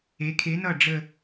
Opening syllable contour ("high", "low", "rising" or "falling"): rising